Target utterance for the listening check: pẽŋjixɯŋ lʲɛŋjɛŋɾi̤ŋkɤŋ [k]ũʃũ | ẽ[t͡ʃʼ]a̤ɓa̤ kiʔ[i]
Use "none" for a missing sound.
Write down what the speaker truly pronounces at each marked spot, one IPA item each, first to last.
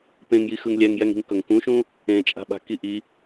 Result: k, t͡ʃʼ, i

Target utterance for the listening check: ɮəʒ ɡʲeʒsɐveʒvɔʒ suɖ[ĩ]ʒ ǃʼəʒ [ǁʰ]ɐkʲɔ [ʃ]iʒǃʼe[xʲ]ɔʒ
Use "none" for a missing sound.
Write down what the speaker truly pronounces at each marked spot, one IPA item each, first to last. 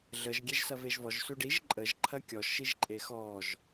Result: i, ǃʰ, ʃ, x

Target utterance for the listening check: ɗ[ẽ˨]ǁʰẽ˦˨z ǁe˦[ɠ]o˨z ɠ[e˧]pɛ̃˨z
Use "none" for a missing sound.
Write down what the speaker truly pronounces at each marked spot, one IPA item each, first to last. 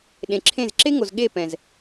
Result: ẽ˨, ŋ, e˦˨

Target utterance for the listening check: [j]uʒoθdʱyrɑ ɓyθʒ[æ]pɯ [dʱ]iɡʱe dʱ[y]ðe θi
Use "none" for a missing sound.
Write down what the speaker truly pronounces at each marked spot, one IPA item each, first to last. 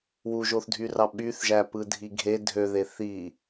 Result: w, æ, dʱ, ø

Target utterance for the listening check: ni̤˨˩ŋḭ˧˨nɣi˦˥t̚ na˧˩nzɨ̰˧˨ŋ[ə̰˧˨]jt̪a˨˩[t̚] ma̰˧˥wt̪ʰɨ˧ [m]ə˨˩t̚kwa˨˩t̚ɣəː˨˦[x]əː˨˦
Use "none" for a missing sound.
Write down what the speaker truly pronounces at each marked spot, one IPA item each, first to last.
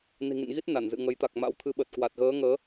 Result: ə˨˦, k̚, ɓ, ŋ

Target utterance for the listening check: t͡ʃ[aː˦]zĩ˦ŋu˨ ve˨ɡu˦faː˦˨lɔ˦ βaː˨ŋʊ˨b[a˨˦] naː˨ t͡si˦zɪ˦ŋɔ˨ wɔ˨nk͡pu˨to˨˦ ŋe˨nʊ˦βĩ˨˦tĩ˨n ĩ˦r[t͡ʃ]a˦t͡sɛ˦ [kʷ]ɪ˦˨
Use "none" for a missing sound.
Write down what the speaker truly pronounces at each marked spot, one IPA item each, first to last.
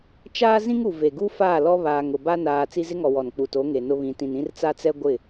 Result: aː˦, a˦, t͡s, ɡʷ

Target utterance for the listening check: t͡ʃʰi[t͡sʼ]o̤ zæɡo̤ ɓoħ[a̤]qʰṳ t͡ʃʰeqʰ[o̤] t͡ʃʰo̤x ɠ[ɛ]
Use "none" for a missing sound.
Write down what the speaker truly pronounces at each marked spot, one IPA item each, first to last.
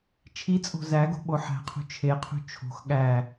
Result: t͡sʼ, æ̤, ṳ, æ

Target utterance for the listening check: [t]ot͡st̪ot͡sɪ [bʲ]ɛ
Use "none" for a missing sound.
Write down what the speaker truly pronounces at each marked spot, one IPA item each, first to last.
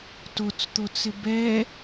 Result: t, b

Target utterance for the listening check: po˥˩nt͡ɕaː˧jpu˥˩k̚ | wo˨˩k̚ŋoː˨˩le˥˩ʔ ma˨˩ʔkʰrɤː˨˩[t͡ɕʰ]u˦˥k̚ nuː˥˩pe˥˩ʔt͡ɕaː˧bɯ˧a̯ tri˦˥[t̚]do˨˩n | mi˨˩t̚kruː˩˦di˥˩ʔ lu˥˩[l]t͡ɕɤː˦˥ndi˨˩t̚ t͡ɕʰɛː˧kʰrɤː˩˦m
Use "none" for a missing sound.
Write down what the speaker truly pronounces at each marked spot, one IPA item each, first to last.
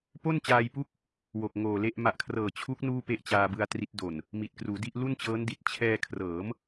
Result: t͡ɕʰ, t̚, n

